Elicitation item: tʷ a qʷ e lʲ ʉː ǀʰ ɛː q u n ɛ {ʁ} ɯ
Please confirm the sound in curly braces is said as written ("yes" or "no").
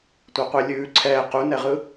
yes